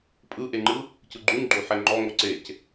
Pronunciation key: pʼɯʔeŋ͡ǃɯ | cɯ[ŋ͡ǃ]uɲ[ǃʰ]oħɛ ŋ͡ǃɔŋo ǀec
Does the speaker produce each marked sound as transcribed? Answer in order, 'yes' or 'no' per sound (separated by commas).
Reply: no, no